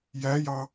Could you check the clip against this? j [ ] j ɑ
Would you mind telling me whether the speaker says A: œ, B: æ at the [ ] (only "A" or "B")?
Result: B